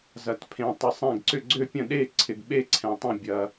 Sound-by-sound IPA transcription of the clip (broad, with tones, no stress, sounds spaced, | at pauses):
z ɐ˨ t pʰ ẽ˨ tˤ ə˨ sˤ ɛ̃˥˨ ɡ ǀ ʏ˥˨ ɡ͡ǀ ø˥˨ pʲ ə̃˥˨ ɗ e˥˨ ǀʰ ɪ˨ ɡ ɓ e˥˨ ǀʰ ɛ̃˨ tˤ ə̃˥˨ bʲ ɐ˨